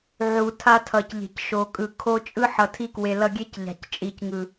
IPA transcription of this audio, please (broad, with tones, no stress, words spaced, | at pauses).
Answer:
ʕu˨tʰa˧tʰʌ˨cʎe̤˨c ʃo˨kʼɯ˨ kʰo˧t͡ʃʼɯ˦ ħʌ˨tʰi˧kwe˨ lʌ˧ɡʲe˦cʎa̤˨c t͡ʃʼi˨cŋɯ˨